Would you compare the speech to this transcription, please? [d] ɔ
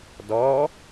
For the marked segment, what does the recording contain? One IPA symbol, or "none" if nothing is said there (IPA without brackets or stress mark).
d